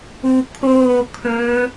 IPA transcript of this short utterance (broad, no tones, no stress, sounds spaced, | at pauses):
u kʰ oː kʰ ɵː